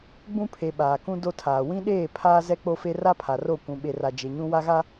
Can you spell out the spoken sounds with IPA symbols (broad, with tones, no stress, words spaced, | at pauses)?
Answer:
ɡ͡bũ˦pʰe˨ ɓaː˨ kũ˦ do˦tʰaː˨ wĩ˦ɗeː˦˨ pʰaː˦zɛ˦k͡po˦fe˦ ra˦pʰa˨ro˦˨ kʷũ˨ɓe˨ra˨ d͡ʒe˨ɲũ˦ wa˦ɣa˦